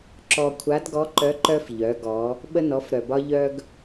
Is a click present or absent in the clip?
present